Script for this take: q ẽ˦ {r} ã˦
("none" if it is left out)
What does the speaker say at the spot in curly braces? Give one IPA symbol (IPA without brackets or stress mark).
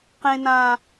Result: n